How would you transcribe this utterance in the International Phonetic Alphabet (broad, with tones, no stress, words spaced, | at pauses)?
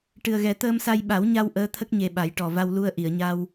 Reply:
ʈɨ˨˩ə̯ɣɛ˨˩˦ t̪əː˧msa˧j ɓa˨˩˦wɲa˧w ʔəː˧˥t̪ʰə˦˥k̚ ɲe˧ɓa˨˩˦j ʈɔ˨˩ va˧wlu˧ə̯ʔi˨˩˨ə̯ɲa˧w